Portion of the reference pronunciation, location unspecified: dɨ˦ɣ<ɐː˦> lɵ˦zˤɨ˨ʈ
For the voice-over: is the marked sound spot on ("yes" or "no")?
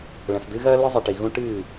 yes